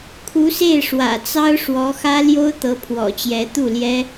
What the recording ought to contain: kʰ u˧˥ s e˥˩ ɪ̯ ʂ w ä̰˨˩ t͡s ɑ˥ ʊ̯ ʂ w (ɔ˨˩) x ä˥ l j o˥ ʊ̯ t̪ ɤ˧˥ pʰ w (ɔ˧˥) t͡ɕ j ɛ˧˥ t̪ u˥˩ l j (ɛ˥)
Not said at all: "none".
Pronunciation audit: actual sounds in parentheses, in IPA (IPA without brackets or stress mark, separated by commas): ɔ˧˥, ɔ̰˨˩, ɛ˥